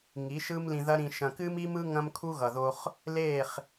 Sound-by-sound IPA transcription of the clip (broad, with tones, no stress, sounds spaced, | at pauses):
ŋ i˨˦ ʃ ɯ˦ m l ĩ˧ ð ɐ˦ ɾ ĩ˧ ʃ ɐ̃˧ k ɨ˦ m i˦ m ɯ˦ ŋ ɐ̃˦ m kʰ u˦ ɣ ʌ˨ ð o˧ χ | l e˦˨ χ